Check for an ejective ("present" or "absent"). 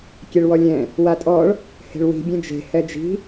present